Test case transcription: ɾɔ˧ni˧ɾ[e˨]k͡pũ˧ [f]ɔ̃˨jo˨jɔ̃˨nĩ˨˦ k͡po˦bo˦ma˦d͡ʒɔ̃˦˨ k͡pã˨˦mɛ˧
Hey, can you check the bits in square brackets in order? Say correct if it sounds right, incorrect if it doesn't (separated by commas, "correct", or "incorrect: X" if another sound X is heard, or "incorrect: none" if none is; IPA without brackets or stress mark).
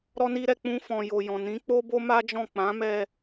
incorrect: ɛ˨, correct